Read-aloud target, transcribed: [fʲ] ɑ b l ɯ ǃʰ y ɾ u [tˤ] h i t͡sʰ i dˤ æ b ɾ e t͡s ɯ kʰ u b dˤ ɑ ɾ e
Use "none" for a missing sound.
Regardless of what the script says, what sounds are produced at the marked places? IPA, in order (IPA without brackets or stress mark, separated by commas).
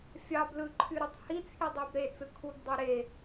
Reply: fʲ, tˤ